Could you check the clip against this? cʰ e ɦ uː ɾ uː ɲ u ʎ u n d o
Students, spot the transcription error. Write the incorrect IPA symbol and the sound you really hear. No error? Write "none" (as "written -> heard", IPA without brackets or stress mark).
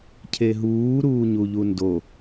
none